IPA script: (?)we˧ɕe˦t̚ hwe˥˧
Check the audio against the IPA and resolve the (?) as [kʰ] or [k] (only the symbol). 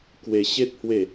k